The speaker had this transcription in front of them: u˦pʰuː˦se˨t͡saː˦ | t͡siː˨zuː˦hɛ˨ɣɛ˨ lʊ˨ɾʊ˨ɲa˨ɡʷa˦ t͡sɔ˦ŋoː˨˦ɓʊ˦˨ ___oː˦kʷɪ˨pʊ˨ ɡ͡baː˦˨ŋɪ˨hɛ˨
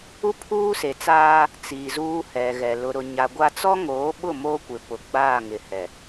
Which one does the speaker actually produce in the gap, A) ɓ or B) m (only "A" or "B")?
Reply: B